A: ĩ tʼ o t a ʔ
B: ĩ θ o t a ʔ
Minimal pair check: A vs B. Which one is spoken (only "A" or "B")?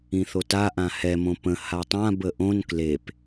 B